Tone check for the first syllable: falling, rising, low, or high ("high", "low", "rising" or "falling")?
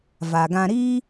low